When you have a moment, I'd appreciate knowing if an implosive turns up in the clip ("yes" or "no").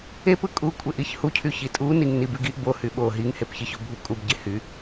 yes